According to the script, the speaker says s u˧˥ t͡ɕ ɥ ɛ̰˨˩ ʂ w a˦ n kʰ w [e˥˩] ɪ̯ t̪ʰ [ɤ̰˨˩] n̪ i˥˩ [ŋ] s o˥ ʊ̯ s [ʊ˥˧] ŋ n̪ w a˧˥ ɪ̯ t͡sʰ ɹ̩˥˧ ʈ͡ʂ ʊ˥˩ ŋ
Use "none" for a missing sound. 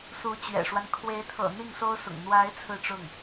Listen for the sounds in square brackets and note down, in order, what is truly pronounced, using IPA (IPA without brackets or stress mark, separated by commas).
e˧˥, ɤ̰˨˩, ŋ, ʊ̰˨˩